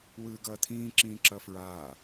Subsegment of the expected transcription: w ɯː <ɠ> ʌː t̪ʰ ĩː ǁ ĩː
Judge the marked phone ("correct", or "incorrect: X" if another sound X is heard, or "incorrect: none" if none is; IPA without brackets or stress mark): incorrect: ɡ